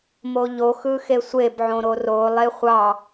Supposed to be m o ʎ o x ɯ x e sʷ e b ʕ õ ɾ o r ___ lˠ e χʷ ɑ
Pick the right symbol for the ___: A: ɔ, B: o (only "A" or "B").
B